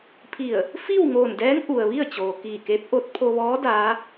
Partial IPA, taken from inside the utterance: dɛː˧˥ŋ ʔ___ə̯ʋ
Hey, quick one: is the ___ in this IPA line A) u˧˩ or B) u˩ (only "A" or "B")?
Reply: B